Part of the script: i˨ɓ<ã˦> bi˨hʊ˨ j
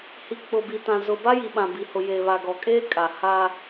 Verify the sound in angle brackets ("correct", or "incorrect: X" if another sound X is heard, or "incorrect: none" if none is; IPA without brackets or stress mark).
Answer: incorrect: ã˨